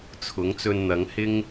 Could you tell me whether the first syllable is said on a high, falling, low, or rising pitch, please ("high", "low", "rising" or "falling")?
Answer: rising